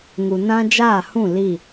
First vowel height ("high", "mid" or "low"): high